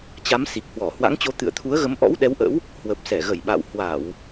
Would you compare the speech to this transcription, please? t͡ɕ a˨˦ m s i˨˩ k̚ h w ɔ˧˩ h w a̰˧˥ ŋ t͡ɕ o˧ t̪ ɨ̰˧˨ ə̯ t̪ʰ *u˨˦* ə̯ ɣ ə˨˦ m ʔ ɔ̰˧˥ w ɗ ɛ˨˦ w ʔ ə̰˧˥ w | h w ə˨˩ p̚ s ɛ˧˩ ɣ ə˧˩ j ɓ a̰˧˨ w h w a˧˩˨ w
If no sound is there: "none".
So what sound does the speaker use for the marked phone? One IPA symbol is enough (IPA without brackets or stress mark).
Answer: u˨˦